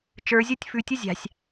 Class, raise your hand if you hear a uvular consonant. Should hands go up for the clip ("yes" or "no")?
no